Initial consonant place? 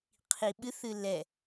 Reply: uvular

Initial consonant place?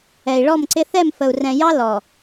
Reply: retroflex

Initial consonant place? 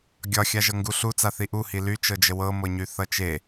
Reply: velar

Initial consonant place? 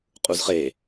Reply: uvular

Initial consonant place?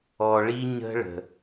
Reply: retroflex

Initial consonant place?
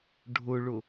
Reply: retroflex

